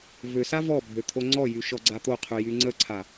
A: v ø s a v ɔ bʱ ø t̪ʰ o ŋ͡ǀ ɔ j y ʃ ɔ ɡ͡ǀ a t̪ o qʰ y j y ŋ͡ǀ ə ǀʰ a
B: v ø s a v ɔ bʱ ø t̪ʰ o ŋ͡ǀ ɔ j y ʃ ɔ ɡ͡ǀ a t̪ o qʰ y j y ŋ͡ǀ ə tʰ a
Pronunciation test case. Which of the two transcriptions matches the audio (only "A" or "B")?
A